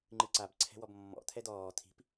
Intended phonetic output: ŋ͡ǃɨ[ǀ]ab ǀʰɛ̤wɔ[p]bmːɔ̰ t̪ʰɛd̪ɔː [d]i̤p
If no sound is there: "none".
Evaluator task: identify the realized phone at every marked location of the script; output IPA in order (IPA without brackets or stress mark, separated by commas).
ǀ, none, t̪ʰ